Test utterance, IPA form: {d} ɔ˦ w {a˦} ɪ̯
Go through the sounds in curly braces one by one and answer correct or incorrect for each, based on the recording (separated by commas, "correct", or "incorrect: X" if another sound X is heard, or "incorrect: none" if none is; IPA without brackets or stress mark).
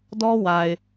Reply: correct, incorrect: a˨